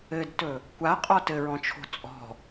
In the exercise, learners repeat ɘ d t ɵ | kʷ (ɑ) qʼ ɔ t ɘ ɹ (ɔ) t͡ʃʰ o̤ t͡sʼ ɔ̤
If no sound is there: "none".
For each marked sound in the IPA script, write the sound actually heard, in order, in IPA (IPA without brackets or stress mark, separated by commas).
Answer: a, ɔ̃